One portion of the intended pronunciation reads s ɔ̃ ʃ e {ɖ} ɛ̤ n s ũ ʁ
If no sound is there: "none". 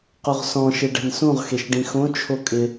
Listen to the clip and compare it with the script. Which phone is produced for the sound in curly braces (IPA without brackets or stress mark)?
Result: ɖ